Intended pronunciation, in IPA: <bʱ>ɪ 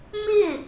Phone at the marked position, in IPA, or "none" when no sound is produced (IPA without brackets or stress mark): m